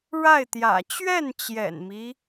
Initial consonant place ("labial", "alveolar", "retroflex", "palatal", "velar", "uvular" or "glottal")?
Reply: retroflex